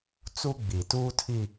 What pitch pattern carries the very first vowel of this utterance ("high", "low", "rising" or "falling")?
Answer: high